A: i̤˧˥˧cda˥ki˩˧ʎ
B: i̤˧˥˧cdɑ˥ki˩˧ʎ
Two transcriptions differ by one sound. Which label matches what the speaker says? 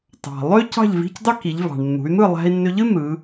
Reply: B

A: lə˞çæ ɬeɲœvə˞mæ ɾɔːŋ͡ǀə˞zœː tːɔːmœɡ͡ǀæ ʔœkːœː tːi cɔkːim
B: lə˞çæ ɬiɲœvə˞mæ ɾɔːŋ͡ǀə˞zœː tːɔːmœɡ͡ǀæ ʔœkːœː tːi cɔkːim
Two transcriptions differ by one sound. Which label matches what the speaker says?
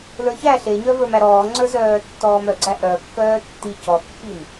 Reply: A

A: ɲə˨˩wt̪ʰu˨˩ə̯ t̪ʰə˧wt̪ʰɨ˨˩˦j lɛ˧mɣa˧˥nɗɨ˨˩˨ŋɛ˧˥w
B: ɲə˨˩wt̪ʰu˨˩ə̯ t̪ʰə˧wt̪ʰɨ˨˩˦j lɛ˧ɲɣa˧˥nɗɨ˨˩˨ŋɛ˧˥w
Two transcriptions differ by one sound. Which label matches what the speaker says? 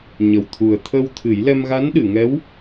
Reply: A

